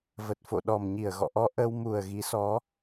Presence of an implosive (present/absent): present